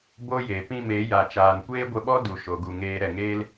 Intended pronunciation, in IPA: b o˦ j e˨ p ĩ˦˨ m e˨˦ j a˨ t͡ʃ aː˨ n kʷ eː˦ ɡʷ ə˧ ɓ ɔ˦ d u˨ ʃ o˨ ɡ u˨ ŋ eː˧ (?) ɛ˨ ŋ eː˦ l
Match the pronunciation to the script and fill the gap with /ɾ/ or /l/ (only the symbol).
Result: ɾ